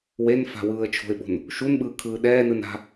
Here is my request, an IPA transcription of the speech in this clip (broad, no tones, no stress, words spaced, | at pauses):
wen fa̤wɯːə̯t͡ʃʰo̤ɪ̯ɓo̤n | ʃunɓɯː kʰɯːɗɛːnɯn a̤